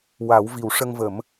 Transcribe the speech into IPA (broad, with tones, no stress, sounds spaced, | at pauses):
w a˨˩˦ w v i˨˩ w ʂ ə˧ ŋ v ə˨˩˦ m